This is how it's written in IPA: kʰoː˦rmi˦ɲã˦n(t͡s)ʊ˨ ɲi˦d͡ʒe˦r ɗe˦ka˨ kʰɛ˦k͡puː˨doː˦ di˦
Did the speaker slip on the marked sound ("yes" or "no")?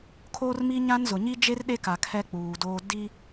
yes